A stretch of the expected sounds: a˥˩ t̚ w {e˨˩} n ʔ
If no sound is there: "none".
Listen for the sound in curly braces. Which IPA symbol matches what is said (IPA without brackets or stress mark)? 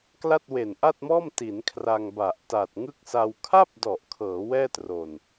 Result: e˨˩